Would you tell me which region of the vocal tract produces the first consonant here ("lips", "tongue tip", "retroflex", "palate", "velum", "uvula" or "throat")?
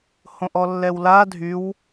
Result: throat